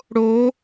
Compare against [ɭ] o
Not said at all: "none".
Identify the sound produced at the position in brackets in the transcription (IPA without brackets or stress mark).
ɽ